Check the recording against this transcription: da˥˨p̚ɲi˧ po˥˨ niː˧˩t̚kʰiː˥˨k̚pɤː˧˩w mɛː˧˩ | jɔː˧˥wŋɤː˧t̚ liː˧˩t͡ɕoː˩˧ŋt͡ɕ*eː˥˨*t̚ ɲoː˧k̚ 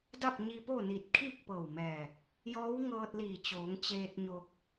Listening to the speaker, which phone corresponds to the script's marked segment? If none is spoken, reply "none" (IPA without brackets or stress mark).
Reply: eː˧